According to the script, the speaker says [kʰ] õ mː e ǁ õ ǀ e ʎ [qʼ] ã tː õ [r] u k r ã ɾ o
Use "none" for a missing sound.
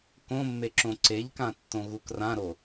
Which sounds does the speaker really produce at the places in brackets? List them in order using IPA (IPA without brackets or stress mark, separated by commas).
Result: k, k, ɣ